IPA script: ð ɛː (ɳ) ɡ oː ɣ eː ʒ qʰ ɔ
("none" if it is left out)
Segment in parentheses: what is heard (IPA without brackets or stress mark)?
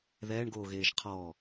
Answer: ɳ